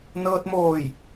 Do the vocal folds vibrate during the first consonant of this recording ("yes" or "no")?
yes